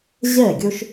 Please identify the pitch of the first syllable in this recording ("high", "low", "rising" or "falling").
falling